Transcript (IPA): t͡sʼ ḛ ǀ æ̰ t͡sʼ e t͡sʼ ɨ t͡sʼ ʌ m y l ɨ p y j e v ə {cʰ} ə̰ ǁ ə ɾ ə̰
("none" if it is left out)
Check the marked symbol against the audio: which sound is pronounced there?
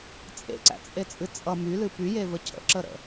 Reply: cʰ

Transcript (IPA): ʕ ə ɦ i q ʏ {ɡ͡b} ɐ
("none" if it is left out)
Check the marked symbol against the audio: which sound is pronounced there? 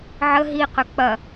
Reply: k͡p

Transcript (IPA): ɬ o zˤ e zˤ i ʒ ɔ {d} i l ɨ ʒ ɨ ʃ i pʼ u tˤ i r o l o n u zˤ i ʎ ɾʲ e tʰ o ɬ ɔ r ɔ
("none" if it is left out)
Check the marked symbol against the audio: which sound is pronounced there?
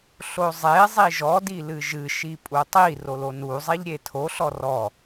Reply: d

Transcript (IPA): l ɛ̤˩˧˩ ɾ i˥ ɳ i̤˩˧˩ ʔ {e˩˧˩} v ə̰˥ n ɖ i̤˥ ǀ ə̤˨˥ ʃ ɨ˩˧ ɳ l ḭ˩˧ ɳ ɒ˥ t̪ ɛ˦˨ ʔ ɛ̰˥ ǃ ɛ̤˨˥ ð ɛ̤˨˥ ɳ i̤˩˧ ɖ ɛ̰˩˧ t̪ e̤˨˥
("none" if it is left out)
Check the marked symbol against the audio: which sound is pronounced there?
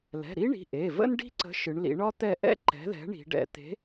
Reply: e˩˧˩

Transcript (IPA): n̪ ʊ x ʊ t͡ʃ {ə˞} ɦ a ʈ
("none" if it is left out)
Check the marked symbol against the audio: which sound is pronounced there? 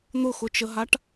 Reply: ə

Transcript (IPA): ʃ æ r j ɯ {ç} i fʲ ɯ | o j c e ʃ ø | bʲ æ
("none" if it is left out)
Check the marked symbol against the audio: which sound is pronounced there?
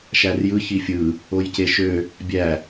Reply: ç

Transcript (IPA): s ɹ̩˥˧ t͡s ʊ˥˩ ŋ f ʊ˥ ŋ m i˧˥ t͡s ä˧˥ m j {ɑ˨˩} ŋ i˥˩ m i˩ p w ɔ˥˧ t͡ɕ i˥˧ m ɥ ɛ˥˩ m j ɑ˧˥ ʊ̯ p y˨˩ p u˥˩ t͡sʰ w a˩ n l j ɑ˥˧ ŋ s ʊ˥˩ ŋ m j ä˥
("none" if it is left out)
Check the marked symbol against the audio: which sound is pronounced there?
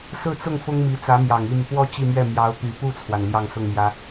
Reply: ɑ˨˩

